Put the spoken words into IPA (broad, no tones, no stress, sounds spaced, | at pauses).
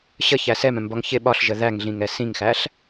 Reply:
ɕ ə ç æ s ɛ m ɛ̃ m b ɒ ŋ ç ɪ ɓ ɒ ɬ ʒ ə ð æ ŋ ɮ ĩ ŋ ɛ s ĩ ŋ x æ ɬ